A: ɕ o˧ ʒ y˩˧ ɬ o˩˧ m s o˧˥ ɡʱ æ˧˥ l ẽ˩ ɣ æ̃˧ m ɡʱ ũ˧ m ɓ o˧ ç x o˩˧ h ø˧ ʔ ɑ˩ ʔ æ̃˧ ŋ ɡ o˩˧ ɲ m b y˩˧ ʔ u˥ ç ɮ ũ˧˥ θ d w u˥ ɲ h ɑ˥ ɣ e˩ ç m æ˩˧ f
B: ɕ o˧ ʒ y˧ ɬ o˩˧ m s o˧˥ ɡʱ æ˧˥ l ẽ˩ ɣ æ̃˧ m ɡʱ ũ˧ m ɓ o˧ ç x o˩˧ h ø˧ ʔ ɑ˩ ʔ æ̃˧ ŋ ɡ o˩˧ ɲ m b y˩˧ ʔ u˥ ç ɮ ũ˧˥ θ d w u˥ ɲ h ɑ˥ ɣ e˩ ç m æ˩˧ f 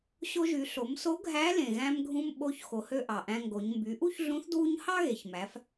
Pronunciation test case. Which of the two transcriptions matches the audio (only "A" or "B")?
A